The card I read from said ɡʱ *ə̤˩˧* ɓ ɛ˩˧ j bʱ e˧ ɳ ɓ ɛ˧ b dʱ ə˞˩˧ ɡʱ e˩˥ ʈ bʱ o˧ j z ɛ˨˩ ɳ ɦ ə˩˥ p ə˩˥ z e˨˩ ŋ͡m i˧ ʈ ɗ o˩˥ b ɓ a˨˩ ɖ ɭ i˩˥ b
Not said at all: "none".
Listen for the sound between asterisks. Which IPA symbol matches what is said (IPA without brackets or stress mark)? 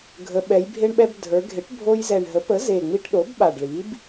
ə˩˧